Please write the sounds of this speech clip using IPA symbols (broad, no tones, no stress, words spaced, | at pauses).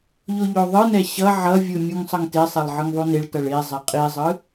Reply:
ʎoʎoðˤɯnɛ ɕʌ ʕʌvʲɯ mʲuŋsˤʌŋtesˤelˠ ʕɯŋðˤuneɭtʌɭ ezˤɛ qʼizˤɯ